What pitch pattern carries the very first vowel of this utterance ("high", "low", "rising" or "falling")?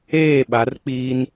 falling